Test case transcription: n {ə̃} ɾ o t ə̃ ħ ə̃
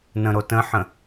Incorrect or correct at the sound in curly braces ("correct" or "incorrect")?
correct